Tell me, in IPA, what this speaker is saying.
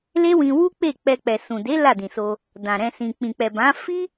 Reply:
l e˦ w ĩ˧ w u˦ k͡p e˦˨ k͡p ɛ˧ k͡p ɛ˨ s ũ˨ d e˨˦ l a˦˨ d ĩ˨ s o˧ | d ã˨ ɾ ɛ̃˧ s ĩ˨ k͡p ĩ˨ k͡p ɛ˨ b ã˨˦ f i˦

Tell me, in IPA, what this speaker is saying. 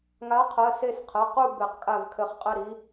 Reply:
ŋ a˨˥ qʰ ɜ˩˧˩ s e˦˨ s qʰ ə˩˧˩ q u˦˨ b e˨˩˦ q kʼ a˦˨ v kʰ ɘ˨˩˦ χ qʼ ɘ˦˨ ɾ i˨˥

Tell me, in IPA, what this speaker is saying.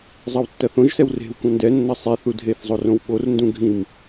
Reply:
zˤ ɐ w tː ɐ θ õ ʒ s ɛ w r e̤ w kʷ ɐ̃ n d ɛ nː ɐ sˤ i θ u dʱ e θ zˤ o r õ w ɓ o r n d ũ ɡʱ ĩ m

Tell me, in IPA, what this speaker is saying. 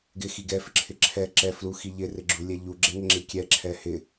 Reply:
ɡ ɪ x i ɡ ɛ f ɪ ǁʰ ɪ ǁʰ ɛ ǁ ɛ f l u x i ʎ ɪ r ɪ ɡ͡ǁ u lʲ ɛ ʎ u ɡ͡ǁ ɛ ŋ ɪ ŋ͡ǁ i kʲ ɛ ǁʰ ɛ h ɪ

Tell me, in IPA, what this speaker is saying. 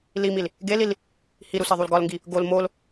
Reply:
l i m i l | ɡ e l i l | h i ɾ u s e ðˤ u l ɡ ɒ l ŋ ɡ i | ɡ o l m o l

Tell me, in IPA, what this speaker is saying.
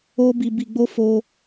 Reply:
o˧ b i˨ b i˨ ɡ͡b o˧ f o˧

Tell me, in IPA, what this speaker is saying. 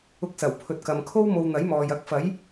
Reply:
ʊ˧ k̚ s ɐ˨˩ w pʰ ɵ˨ t̚ k ɐ˨ m kʰ o˥ w m o˧ w n̪ ɐ˨˥ j m ɔː˨ j ɐ˧ k̚ f ɐ˨˥ j

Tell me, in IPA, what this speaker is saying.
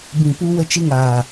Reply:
b ĩ˨ p u˧ w ə˧ t͡ʃ ɨ˧ ŋ aː˨

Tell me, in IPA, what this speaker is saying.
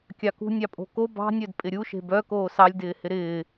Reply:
kʲ ɑ k ṳ nʲ ɑ pʼ o̤ k o b ɑ̤ nʲ œ d pʼ ɪ ɾʲ u ʃ e̤ b œ k oː s ɑ lʲ d ɪː h ɪ ɾ ɪː

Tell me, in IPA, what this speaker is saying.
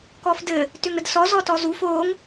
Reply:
k ɔ f d ɘ | t ʏ ŋ ɾ ə d s ɔ z ɔ t ɔ z u f o ŋ

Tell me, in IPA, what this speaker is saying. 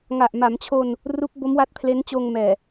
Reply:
ŋ a˨˩ ʔ m a˩˦ m t͡ɕʰ o˧ n | r u˦˥ k̚ b o˦˥ m w a˦˥ t̚ pʰ l e˦˥ n t͡ɕ oː˧ ŋ m ɛː˨˩

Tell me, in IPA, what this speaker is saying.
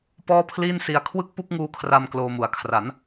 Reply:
p ɔː˥˩ pʰ l iː˥˩ n s i˧ a̯ kʰ w ɯ˥˩ k̚ p u˥˩ k̚ ŋ uː˦˥ kʰ r a˧ m k l oː˧ m u˨˩ a̯ kʰ r a˩˦ n

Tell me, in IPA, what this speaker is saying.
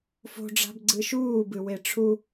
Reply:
f o̤ ɖ͡ʐ a̤ b ɡ͡ǀ ɨ ʃ uː b ɨ w e ʈ͡ʂʰ u

